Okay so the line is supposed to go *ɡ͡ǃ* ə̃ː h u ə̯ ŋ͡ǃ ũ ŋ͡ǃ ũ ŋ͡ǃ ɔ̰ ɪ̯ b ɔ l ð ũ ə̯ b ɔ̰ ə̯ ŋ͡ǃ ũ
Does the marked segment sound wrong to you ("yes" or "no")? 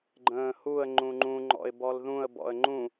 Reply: no